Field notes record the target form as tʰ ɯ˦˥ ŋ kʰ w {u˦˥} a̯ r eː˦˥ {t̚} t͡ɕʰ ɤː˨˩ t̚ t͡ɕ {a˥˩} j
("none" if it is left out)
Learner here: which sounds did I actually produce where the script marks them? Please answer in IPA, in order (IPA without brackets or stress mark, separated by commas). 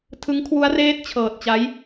u˦˥, t̚, a˦˥